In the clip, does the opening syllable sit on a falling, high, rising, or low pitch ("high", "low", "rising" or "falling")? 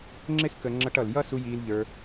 high